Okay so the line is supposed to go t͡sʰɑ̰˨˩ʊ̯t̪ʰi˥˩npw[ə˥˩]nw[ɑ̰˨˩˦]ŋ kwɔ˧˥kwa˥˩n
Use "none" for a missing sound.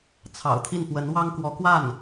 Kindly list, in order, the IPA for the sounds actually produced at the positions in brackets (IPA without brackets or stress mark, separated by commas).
ə˧˥, ɑ˥